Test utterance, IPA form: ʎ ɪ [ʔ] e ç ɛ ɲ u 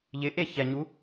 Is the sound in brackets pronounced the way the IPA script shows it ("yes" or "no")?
yes